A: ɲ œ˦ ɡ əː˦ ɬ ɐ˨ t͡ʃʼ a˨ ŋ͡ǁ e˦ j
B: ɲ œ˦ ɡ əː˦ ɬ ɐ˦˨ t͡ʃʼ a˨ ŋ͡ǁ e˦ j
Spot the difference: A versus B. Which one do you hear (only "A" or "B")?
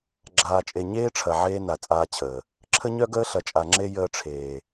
A